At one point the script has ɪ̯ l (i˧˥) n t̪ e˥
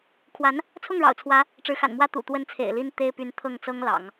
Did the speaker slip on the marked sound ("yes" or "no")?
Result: yes